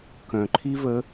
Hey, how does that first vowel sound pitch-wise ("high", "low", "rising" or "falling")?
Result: low